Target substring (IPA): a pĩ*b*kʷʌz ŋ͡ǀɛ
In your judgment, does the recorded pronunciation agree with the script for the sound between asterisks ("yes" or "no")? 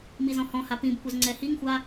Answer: yes